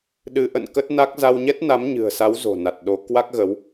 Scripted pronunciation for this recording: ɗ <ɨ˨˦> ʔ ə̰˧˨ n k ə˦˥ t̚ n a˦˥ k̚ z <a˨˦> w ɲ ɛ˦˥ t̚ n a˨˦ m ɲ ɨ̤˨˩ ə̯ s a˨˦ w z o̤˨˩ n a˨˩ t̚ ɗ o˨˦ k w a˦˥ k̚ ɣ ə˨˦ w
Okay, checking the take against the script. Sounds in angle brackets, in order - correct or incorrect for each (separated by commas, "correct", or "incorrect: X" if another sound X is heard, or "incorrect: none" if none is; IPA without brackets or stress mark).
correct, incorrect: a˧